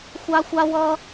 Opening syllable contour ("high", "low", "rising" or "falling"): high